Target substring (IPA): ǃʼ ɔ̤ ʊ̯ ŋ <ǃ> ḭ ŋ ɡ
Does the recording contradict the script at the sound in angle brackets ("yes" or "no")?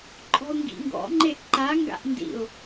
yes